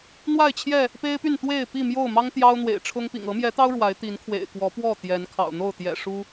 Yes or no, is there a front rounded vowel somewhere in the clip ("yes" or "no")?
yes